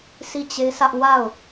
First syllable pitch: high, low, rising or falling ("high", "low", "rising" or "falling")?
falling